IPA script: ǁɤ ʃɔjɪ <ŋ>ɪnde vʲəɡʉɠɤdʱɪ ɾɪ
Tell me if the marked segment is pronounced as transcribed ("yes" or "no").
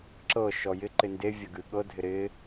no